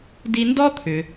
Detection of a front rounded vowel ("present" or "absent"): present